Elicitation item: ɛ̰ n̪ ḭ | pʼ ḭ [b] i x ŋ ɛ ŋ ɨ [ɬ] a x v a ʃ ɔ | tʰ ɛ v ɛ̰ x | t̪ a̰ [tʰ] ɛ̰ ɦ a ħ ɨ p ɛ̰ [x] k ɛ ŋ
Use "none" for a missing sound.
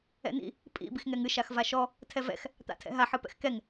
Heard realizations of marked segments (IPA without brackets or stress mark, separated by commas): b, ʃ, tʰ, x